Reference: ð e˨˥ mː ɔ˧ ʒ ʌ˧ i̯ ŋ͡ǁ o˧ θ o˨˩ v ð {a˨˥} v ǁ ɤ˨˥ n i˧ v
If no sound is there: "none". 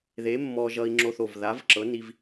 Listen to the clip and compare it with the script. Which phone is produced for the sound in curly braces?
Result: a˨˥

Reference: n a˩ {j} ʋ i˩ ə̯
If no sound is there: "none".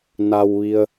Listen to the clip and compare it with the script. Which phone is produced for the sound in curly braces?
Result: w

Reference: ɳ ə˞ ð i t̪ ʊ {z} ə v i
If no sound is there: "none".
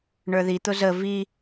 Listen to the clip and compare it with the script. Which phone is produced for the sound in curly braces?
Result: z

